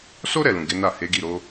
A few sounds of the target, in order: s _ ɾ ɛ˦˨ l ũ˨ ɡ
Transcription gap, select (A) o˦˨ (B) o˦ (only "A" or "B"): B